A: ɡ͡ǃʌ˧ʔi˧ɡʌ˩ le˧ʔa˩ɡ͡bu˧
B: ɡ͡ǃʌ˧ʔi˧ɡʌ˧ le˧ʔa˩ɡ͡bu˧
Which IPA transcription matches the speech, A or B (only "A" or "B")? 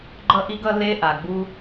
B